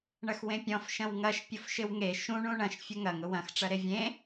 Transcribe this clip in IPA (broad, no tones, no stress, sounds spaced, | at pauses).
ɳ ɐ x w ẽ pʲ ɔ̃ f ʃ ɐ̃ w ŋ ɐ ʃ pʲ ʊ f ʃ ɪ w ŋ e ʃ ũ ɳ ũ ɳ ɐ̃ ʃ fʲ ʊ ŋ ɐ ŋ ʊ w ɐ̃ x ʈ͡ʂ ɐ ɾ e vʲ ẽ